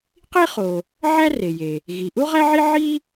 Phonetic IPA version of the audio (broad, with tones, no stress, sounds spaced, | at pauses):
q i˥ χ o˩ | ʕ æ˥ r e˩ j e˩ | ɣ i˩ ʔ u˥ ʁ æ˥ ʕ i˥ ʕ i˥